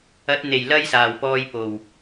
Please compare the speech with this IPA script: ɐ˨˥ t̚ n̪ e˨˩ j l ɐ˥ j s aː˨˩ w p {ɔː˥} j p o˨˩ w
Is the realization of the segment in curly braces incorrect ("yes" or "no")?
yes